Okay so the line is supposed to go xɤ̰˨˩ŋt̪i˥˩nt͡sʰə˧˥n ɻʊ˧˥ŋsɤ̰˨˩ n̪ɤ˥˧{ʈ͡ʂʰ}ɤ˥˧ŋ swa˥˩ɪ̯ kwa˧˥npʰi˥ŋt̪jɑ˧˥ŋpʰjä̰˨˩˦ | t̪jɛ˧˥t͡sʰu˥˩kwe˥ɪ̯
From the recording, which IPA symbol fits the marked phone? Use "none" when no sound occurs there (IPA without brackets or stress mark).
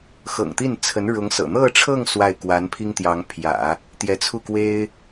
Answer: ʈ͡ʂʰ